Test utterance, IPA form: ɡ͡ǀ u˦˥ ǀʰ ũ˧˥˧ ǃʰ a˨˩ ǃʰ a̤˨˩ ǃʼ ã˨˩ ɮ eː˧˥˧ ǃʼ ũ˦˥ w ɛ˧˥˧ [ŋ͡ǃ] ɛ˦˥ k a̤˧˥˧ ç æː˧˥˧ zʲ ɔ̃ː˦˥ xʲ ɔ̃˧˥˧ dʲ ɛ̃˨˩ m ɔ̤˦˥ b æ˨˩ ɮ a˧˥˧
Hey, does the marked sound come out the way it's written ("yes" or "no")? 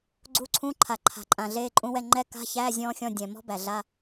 yes